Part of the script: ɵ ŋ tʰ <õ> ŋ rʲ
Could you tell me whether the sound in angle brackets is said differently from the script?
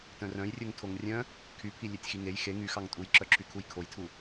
yes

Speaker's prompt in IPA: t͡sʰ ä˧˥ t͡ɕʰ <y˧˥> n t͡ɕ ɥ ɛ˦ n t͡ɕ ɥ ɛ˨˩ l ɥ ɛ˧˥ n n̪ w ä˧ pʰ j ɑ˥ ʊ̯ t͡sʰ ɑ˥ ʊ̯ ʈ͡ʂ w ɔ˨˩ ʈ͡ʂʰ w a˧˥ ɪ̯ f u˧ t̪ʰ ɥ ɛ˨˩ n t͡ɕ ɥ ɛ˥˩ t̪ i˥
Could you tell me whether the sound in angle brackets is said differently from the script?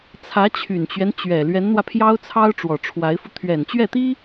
yes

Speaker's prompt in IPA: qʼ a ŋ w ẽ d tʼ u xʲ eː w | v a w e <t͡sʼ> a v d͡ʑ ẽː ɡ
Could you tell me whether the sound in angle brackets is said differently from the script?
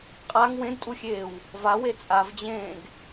no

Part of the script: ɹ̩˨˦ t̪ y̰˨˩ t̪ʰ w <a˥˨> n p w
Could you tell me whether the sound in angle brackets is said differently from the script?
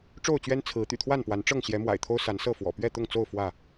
no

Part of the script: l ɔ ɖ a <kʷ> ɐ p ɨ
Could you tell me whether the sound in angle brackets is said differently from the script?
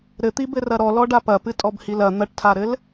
yes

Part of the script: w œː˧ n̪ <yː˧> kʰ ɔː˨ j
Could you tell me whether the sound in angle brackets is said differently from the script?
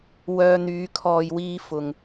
yes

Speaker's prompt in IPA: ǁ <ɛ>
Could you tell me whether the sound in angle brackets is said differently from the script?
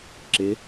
yes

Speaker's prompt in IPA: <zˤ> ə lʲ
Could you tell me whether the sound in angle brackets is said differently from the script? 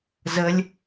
yes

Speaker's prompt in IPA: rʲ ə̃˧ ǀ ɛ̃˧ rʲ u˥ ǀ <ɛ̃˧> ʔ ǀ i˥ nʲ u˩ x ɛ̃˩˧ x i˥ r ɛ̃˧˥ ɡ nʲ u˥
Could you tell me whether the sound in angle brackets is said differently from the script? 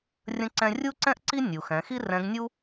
yes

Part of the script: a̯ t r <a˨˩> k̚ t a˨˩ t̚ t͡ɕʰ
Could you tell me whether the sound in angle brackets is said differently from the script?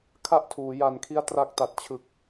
yes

